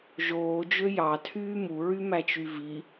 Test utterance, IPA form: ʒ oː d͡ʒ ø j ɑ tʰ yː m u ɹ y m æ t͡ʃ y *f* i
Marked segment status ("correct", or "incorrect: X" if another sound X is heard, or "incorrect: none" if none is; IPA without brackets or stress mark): incorrect: v